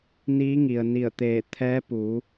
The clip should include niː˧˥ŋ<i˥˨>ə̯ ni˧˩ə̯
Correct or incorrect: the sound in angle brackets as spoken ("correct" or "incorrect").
incorrect